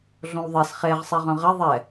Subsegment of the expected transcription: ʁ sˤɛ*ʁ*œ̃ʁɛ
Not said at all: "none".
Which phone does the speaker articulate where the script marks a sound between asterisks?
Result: ʁ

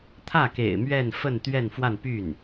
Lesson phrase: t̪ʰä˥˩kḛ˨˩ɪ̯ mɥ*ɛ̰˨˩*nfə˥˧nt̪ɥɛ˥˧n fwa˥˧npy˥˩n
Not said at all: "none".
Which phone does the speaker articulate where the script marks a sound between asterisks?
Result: ɛ˥˧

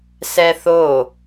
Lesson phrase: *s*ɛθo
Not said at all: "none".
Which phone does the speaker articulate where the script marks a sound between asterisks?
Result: s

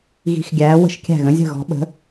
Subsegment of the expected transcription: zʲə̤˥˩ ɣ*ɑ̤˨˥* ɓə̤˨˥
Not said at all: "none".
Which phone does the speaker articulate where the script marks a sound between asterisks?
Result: ɔ̤˨˥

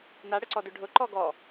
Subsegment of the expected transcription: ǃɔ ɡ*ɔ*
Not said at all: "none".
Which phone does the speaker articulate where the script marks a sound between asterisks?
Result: ɔ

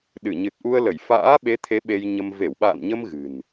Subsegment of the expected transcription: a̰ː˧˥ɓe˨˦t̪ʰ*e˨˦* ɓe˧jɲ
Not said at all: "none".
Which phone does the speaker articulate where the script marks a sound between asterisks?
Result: e˨˦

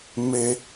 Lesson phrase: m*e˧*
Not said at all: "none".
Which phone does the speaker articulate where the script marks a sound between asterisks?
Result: e˧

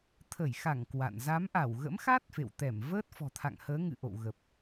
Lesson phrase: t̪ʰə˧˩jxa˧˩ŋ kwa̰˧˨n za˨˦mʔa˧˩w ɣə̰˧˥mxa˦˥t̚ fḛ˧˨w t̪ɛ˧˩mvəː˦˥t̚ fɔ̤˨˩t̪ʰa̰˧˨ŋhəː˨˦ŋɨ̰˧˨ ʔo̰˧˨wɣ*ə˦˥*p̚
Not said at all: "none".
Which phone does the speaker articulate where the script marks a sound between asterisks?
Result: ə˨˩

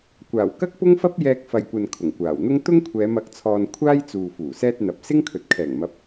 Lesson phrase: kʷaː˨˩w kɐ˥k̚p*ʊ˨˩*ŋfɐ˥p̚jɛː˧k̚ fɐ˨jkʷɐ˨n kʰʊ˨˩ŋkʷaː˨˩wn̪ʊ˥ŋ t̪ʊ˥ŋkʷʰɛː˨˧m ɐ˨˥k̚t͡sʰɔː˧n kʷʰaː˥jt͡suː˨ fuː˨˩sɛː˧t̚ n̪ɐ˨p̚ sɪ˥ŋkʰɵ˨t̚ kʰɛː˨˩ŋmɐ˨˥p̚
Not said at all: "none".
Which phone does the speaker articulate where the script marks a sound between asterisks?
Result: ʊ˥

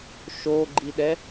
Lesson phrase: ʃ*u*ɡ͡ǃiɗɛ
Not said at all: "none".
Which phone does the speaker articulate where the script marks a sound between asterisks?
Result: o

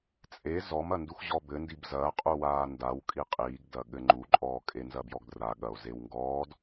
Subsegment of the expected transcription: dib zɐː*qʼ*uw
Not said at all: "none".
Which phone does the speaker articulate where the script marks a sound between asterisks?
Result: qʼ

